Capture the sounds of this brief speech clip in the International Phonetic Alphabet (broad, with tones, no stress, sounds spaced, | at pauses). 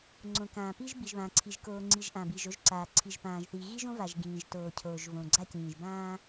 ŋ͡ǀ õ˩ k ãː˩ p i˧ ʒ b i˩ ʒ β ãː˩ ǀʰ i˩ ʒ k oː˩ ŋ͡ǀ i˩ ʒ ʔ ã˩ b i˩ ʒ o˧ ʒ ǀ aː˩ ǀʰ i˩ ʒ p ãː˩ ʒ θ i˩ ɣ i˧ ʒ õ˧ v a˩ ʒ ɡ ĩː˩ ʒ t oː˩ cʰ oː˩ ʒ v õ˩ ɡ͡ǀ a˧ c ĩː˩ ʒ b ãː˧